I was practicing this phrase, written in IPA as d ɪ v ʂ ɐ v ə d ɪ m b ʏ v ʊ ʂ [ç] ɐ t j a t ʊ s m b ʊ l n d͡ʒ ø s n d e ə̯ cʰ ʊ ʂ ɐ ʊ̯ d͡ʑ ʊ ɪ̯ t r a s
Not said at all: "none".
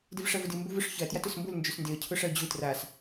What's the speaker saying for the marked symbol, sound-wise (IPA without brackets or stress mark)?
ç